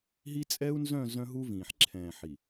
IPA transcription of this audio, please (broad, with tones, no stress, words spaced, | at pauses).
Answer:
ɦi˦ t͡sʼɛ˦u̯nzœ̃˦˨ zœ̃˦ɦu˦vĩː˨ħ ǁʰɛ̃ː˨ħi˨